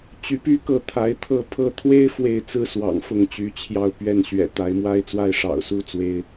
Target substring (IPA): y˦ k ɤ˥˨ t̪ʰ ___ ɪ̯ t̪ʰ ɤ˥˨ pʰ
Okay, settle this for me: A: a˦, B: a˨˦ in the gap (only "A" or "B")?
B